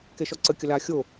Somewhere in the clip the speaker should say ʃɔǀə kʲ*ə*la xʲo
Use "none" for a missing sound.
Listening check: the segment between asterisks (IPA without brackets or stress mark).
ə